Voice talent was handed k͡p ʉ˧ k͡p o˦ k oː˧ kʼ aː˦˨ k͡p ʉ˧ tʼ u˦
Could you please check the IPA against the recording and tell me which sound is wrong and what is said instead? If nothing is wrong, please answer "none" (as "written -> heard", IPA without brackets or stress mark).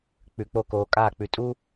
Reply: none